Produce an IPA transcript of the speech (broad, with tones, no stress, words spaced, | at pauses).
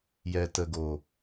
jɛ˨ tə˨ɡoː˨